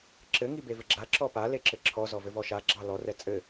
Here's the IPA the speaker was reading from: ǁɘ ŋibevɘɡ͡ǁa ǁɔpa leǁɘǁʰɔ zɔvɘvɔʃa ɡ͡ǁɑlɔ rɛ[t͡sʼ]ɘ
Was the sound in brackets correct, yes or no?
yes